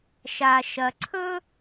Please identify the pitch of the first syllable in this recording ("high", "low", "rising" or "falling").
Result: low